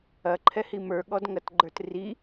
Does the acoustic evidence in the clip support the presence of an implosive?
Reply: yes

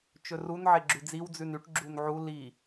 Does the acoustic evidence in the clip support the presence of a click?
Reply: yes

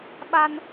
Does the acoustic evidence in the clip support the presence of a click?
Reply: no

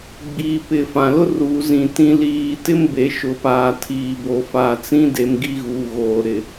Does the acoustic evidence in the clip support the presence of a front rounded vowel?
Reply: no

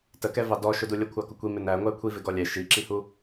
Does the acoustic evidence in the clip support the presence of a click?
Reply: yes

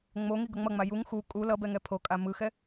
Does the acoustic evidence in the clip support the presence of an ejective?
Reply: yes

